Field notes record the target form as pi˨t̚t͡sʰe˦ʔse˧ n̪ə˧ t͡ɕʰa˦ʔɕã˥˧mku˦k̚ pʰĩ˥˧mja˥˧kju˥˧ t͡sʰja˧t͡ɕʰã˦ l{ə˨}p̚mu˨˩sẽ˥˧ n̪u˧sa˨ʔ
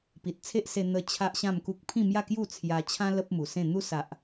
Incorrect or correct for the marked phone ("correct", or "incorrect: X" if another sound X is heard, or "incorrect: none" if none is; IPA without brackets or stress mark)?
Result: incorrect: ə˦